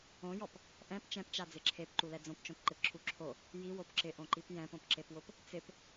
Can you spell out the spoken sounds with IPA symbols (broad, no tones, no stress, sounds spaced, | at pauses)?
õ j ɔ p | ʔ ɛ̃ p t͡ʃ ɛ̃ p t͡ʃ a d͡z ɪ ǁʰ e p ǃ u l ɛ d͡z õ p t͡ʃ õ p ǃ ɪ p ǁʰ u ǁʰ o | j i w o p ǁ ɪ ʔ õ ǃ i p j ɛ̃ p õ p ǁ e p w ʊ p | t͡s ɪ p